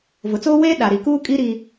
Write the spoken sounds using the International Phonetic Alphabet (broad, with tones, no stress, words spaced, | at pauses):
vʊ˨t͡soː˦weː˦ ɗa˨ɾi˨kuː˦kʼi˦ ɾiː˦